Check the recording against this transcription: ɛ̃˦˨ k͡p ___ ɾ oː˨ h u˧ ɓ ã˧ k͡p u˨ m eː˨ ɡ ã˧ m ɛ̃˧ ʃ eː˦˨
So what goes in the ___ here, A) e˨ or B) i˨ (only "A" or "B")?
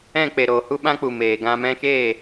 A